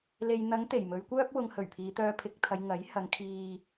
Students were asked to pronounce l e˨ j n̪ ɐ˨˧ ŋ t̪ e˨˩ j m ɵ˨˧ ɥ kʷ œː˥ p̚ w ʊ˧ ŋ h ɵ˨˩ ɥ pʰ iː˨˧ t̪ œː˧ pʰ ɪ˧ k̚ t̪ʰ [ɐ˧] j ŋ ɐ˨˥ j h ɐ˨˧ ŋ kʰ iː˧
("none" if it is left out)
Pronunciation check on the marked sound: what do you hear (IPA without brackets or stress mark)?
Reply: ɐ˨˧